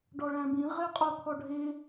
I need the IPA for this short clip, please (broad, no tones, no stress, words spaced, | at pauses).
ɖɔɭæ̃bĩ ʁeqʼot̪ʰɔɖʱe